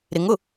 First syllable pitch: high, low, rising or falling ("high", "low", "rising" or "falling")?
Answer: rising